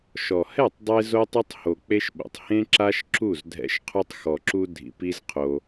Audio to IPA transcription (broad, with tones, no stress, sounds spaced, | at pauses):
ʃ ɔ˨ h ɛ˦˨ tˤ dˤ e˧ z o˦ tˤ o˦ tˤ h o˨ k͡p e˦ ʃ ɓ o̰˨ tˤ h ẽ˦ ǁ a˦ ʃ ǁ u˦˨ z dʱ ɛ̰˧ ʃ qʰ u˧ tˤ x ɔ˨ ǁ u˧ dʱ ḭ˨˦ p i˦ z qʰ o˧